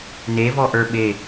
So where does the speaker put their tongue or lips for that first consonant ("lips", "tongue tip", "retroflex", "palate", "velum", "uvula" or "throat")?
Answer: tongue tip